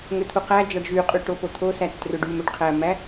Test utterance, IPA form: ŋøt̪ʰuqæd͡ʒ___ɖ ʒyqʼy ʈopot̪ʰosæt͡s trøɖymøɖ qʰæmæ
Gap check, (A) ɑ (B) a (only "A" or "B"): A